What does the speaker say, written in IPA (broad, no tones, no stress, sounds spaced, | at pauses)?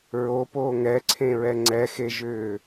ɹ o p oː ŋ ɛ ǀʰ ẽ ɹ ɛ ŋ͡ǀ ɛ x e ʒ ʏː